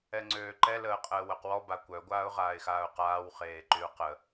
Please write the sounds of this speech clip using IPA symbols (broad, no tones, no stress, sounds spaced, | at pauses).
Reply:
ɛ ŋ͡ǀ øː ǃ ɛ l əː qʼ əː w œ q w ɔ b a kʷ œ ɡʷ aː ʊ̯ ʁ aː ɪ̯ x aː ʊ̯ q aː w χ eː ǃ y ʊ̯ q ə